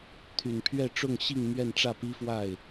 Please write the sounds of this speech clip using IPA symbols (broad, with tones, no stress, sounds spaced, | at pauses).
t̪ʰ y˨˩ n pʰ ɥ ɛ˥˧ ʈ͡ʂ ʊ˥˧ ŋ ɕ i˥˧ ŋ m ɥ ɛ˥˧ n ʈ͡ʂ ä˥˩ p i˥ f w a˥˩ ɪ̯